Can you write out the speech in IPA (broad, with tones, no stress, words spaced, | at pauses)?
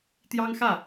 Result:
t̪jɑ˥ŋxä˥˩